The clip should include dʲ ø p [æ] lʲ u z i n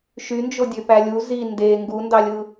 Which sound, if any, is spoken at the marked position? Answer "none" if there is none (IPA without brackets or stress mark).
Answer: æ